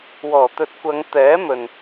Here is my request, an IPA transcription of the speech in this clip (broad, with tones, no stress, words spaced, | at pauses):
wɔː˨˩t̪ɵ˨˥t̚ kʷɐ˨˧ŋ t̪ɛː˨˥mɵ˨n